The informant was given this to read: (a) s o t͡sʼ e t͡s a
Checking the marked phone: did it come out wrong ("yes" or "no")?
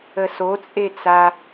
yes